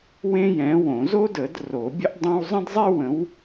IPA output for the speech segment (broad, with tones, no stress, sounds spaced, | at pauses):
w ẽ˥ j ɛ̃˨˥ w õ˨˩˦ z o˥ d ə˨˩˦ d r o˨˩˦ bʲ ə˥ ʔ dˤ õ˥ w zˤ ə̃˥ d zˤ e˥ w ə̃˨˥ w